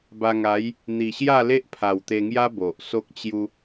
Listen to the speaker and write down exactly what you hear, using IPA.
b a˧ ŋ a˨˦ j | n̪ i˨˩ ɕ j a˥˧ l e˦ ʔ pʰ a˨˩ w t̪ e˧ ŋ j a˦ b o˨ ʔ s o˦ k̚ t͡ɕ j u˦

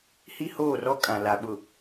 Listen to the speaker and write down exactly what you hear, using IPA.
h i˦ h oː˦˨ r ɔ˦ kʼ ã˨ l a˨ ɓ ʊ˨

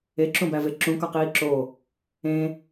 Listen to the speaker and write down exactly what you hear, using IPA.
e ǁ ũ b æ v e ǁ ũ k ɒ q iː ǁ o | ẽ

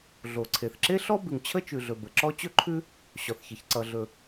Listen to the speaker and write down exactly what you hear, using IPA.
ɮ o˩ ǀʰ e˩ θ ǁ e˥ ɬ ɔ˥ b ʉ˩ ŋ t͡ɕʰ ə˥ t͡ʃ ʉ˩ ɮ ɵ˩ b ə˩ ǁ ɔ˥ t͡ɕ ɵ˥ ǃʰ ʉ˥ | ɕ ɔ˩ θ ç ə˩ ç ǀ ʌ˩ ɮ ɵ˩

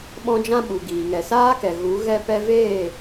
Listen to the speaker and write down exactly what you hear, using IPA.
ɓ ɔ̃˧ d͡ʒ ã˧ ɓ u˨ ɡ iː˨ ŋ ɛ˨ s aː˦ k ɛ˨ ɣ u˨˦ ɣ ɛ˧ p ɛ˧ v eː˦˨

